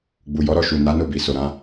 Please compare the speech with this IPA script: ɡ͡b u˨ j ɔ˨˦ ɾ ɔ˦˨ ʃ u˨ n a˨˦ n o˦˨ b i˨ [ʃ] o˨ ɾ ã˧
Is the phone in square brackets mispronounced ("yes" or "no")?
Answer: yes